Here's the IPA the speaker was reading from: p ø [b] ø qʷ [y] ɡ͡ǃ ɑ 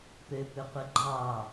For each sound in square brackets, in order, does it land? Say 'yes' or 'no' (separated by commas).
no, no